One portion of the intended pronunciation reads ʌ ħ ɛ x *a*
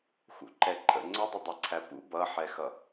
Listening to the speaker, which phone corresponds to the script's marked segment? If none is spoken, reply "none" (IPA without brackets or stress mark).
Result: ʌ